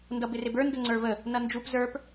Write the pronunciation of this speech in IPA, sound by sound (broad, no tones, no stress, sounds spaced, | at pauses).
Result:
n d ʌ b ɪ r ɪ b ə˞ n d ə ŋ͡ǀ ə˞ v ə | n ʌ n d͡ʒ u p z ə˞ p